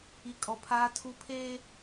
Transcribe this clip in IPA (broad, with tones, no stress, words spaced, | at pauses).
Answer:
i˦kʼɔ˦pʰaː˦ tʰu˦pʰeː˦